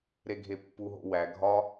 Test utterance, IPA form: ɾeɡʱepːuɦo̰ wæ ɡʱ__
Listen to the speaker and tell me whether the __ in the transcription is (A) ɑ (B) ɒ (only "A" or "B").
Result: B